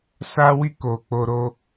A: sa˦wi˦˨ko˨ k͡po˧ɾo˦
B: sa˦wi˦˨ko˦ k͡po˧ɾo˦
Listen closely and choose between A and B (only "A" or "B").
A